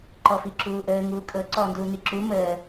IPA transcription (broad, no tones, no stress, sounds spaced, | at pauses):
ǃ ɔ f i ǁ uː ʔ əː ŋ uː kʼ ɤ ǀ ɔː n d uː n i ǁ u m əː